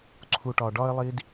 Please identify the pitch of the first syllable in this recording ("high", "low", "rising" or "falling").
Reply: low